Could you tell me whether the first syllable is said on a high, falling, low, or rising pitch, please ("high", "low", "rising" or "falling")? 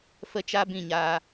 high